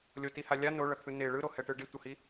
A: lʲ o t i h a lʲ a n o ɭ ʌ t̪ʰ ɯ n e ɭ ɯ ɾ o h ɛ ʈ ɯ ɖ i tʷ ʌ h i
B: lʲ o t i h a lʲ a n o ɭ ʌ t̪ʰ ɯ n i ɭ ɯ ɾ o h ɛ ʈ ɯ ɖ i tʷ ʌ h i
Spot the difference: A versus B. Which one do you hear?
A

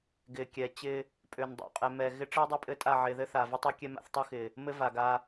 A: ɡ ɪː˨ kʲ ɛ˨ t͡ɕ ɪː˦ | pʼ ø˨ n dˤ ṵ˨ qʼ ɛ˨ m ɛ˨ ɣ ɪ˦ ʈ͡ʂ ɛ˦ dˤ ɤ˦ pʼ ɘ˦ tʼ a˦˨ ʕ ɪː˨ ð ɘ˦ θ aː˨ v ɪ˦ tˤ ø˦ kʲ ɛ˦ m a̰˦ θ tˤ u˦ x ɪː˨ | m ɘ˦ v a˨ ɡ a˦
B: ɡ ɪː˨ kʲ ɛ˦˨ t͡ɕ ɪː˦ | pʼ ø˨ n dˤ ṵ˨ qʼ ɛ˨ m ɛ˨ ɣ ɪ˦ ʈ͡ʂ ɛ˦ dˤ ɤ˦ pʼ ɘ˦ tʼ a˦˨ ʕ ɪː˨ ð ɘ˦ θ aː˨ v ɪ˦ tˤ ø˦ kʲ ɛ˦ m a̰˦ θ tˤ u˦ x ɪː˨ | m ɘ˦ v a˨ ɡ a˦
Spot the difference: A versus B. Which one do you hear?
A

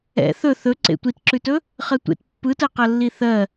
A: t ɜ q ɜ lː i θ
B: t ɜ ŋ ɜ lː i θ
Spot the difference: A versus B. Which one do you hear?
A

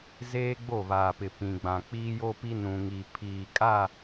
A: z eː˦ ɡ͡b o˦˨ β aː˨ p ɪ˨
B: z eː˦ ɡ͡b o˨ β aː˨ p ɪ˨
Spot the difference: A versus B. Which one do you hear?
A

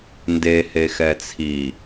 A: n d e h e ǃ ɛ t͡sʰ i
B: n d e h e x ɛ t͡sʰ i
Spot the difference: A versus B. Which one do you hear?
B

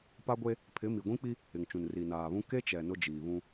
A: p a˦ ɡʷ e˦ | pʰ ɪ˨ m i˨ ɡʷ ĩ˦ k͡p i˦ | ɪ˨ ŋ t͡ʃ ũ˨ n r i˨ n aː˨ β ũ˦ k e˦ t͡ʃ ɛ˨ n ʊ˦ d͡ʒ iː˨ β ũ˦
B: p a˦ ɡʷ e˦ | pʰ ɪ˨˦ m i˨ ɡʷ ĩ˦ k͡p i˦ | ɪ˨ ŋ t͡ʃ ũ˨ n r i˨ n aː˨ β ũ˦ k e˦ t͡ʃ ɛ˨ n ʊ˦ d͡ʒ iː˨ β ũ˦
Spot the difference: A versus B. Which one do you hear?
B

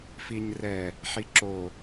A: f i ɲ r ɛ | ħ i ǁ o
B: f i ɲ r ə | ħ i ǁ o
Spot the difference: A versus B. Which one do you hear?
A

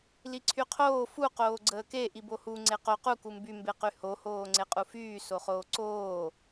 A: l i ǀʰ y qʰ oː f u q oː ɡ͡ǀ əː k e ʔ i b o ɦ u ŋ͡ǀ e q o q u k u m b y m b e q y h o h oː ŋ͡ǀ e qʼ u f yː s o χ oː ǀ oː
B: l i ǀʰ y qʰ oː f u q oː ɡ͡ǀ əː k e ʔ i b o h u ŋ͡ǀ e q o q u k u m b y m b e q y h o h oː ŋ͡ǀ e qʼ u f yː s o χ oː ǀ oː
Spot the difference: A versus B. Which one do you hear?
B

